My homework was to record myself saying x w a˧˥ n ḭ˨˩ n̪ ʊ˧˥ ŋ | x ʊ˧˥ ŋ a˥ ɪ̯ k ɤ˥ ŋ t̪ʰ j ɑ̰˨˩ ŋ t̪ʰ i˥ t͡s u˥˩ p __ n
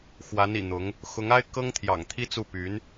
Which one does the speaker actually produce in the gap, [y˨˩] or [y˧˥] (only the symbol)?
y˧˥